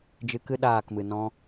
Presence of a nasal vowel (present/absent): present